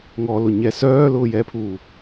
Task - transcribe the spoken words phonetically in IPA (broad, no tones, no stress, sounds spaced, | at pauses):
ŋ ɔ l ʊ ɲ ɛ s œː l ʊː j ɛː pʰ uː